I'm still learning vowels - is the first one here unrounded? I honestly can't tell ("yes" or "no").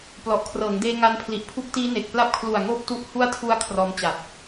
no